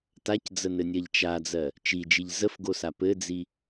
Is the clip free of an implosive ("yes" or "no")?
yes